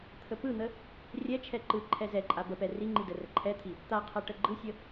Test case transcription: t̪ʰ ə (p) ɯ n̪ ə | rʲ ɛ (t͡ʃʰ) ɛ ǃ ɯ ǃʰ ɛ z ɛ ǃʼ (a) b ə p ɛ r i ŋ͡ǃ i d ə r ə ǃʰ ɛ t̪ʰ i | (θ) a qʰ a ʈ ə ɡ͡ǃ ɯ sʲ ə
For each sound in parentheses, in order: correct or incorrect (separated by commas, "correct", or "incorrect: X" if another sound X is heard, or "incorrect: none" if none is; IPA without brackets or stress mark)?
correct, correct, correct, incorrect: t̪